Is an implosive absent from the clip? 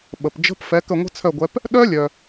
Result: no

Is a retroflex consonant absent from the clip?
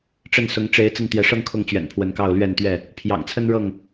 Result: no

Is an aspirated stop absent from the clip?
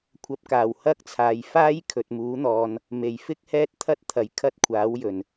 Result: no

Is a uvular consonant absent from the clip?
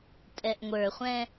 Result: no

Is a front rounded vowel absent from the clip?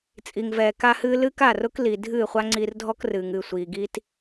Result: yes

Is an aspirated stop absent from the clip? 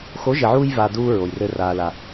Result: yes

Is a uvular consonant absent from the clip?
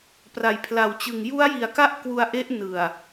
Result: yes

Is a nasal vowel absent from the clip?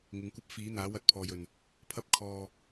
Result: yes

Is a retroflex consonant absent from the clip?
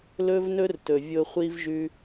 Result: yes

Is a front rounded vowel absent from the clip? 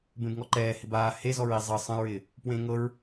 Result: yes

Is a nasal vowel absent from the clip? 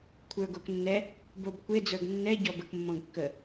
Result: no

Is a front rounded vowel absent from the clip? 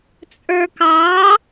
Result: yes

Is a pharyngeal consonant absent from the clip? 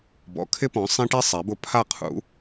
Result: yes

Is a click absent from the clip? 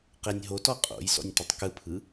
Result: yes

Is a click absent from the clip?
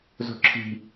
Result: no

